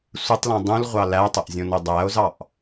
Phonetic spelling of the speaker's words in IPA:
sʷ ɪ tˤ l õ dˤ ũ l ʁʷ ɑ l æ tˤ ɐ ʔ zʲ õ n o dˤ æ o̯ z ɑ ʔ

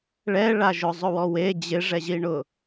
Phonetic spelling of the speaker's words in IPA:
ɭ ɛ ɭ a ʒ ʊ zˤ ʊ w ɔ w e d͡ʑ ɪ ʐ ɛ ʑ i ɳ ʊ

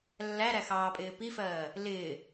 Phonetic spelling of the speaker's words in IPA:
lː æ ɾ æ x ɑː pʼ ɪː p i f ɜː | l ɪː

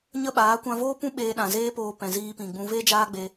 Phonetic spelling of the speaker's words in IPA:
ɲ ə˦ ɓ aː˨˦ kʷ ã˧ v oː˦ p ũ˦ ɓ eː˧ ɗ ã˨ z eː˦ p oː˧ p ɛ̃˨ z iː˧ p ĩ˨ ɡ͡b ũ˧ v e˦ d͡ʒ aː˦ ɡ͡b e˧

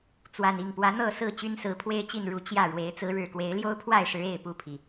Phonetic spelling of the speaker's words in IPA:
t͡s w a˨˩ n i˥˨ ŋ p w ä˨˦ n̪ ɤ˥˨ s ɹ̩˥˨ t͡ɕ y˦ n s ɹ̩˨˦ pʰ w e˦ ɪ̯ t͡ɕ i˥˨ n ɻ u˨˦ t͡ɕ j ä˥˨ ɻ w e˨˦ ɪ̯ t͡s ɹ̩˨˦ ɻ ɻ̩˨˩ k w e˨˦ ɪ̯ l j o˦ ʊ̯ pʰ w a˥˨ ɪ̯ ʂ ɻ̩˨˦ e˥˨ ɪ̯ p u˥˨ pʰ i˩

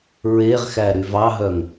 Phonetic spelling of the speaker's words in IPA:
ɹ e ʁ x æ ɾ y v ɑ ɦ œ ŋ

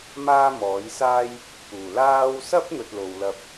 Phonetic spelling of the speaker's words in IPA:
m aː˥ m ɔː˨˥ j s aː˥ j | p uː˨˩ l aː˥ w s ɐ˥ p̚ n̪ ɵ˧ t̚ l o˨ w l ɐ˧ p̚

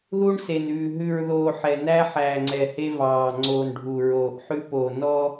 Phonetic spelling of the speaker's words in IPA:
ð u˦ ɳ s e˨ n ʉː˨ ɦ ʉ˨ ɹ ð oː˨ ħ ɛ˨ n æ˦ ħ æː˨ ŋ͡ǀ ɛ˨ h e˦ v ɑː˨ ŋ͡ǀ oː˨ n ɖʱ u˨ ɹ oː˨ ʔ ħ ʉ˦ p o˨ n ɔ˦

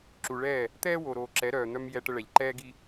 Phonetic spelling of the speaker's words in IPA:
ǁ u˨ ɭ ɛː˦˨ | t̪ ɛː˦ w o˨ ɾ oː˨ ǁ ɛ˨˦ ɾ œː˨ n̪ œ˦ m j ɛ˦ ʈ ə˦ ɭ ɛ˨ ʎ ǃ ɛː˦ ɡ i˦

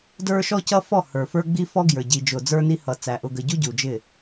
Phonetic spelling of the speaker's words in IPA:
d ə˞˦ ʃ ɔ˦ c ʌ˦ f ɔ˦˨ h ə˞˨ f ə˞˦ ɡ͡b i˦ f ɔ˦ ɡ j ə˞˨ ɟ i˨ d͡ʒ ʊ˨ d͡z ə˞˦ n i˦ h ʌ˨ t͡s æ˨ ʔ ʊ˨ ɡ ə˨ ɟ u˦ ɟ u˨ d͡ʒ ɪ˦˨

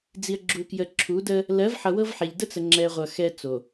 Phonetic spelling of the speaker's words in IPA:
d͡z i˨ ə̯ ɡ͡ǁ u˨ k j ə˨ ǁʰ u˨˦ d ə˦ | l ɜ˨˦ v ħ ʌ˨ w ɤ˦ v ħ ɛ˨ ʎ d ə˦ t͡s ə˨ ŋ͡ǁ ɛ˨ ʁʷ ʌ˨ x ɛ˦ t͡s o˨

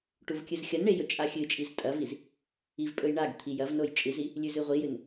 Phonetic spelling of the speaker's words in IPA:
ʈ u v kʲ ɨ z xʲ ɐ n ɳ e j ɵ t͡ʃʼ a xʲ ɨ t͡ʃʼ i z tʼ ɐ v i z | i v pʼ ɵ j ɳ a ɡ t̪ʰ i j ɐ v n o j t͡ʃʼ ɨ z i | lʲ ʉ z ɨ ʁʷ i j ɨ n

